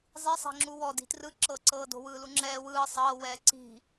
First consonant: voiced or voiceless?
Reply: voiced